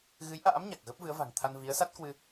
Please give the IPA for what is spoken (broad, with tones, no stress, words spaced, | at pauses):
ɣɨ˨˦jʔa̰ː˧˥m ɲa˨˩k̚ɣə˦˥p̚vɨ˨˦ə̯ va̤˨˩ŋt̪ʰa˧n vi˨˦ə̯sa˦˥t̚kwɨ˧